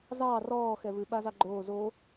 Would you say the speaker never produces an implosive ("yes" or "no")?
no